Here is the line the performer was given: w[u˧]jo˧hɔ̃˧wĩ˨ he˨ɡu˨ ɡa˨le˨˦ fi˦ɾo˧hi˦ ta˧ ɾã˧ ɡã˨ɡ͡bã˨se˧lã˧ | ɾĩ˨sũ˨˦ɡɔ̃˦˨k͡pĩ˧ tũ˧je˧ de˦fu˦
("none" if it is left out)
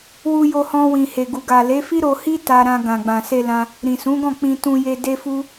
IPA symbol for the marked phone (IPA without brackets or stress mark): u˧